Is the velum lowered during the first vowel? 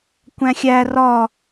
yes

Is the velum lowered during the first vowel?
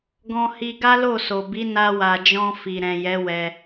yes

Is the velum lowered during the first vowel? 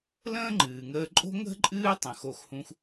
yes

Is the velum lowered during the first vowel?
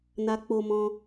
no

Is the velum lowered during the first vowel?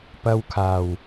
no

